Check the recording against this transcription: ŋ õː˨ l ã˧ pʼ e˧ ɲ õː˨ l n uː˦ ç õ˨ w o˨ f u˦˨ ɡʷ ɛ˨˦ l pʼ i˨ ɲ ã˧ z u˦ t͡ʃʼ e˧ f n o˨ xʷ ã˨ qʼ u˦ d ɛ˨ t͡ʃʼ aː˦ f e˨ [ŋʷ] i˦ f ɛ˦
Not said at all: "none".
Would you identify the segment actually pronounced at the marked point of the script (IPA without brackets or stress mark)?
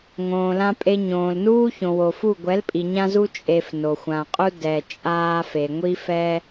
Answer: ŋʷ